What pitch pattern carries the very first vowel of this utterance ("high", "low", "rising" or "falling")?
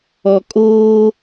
low